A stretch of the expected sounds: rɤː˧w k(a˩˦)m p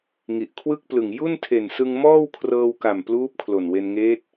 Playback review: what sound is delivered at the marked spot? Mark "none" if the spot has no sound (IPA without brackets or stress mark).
a˨˩